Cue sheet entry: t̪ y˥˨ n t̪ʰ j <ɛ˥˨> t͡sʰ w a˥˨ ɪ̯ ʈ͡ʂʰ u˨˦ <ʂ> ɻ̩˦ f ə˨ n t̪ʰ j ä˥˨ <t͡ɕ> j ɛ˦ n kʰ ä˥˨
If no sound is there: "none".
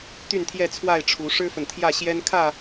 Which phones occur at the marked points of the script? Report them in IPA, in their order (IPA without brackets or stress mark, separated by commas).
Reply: ɛ˥˨, ʂ, ɕ